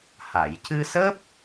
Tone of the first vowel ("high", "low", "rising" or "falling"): low